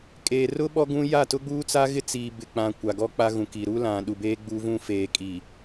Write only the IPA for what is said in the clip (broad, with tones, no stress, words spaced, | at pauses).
kʼeː˨rʊ˦ ɓɔ˦ɡũ˦ ja˦˨ tʊ˦ɡ͡buː˦t͡sa˦ ɣɪ˦t͡siː˨ bɪ˨k͡pã˨ kʷa˨ɡɔ˦k͡pa˦ɣũ˨ ki˨ɾu˦ lã˨ ɗu˨beː˦ɡ͡bu˦vũ˦ feː˨kʼi˨